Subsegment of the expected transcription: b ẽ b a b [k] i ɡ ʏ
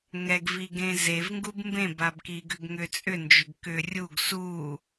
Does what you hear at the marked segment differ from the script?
no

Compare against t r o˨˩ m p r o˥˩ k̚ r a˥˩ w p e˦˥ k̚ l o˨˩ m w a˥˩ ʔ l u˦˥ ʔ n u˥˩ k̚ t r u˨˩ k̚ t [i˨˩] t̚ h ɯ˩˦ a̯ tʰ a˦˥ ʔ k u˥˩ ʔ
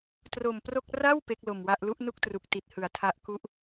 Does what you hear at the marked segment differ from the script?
no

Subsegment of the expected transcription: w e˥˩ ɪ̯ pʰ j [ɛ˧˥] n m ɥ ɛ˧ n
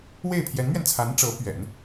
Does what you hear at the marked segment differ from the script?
no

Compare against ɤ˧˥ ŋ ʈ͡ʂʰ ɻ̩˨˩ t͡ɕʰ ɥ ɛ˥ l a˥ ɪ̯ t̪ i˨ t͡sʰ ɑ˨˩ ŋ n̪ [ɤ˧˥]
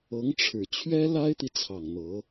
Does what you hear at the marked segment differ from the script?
no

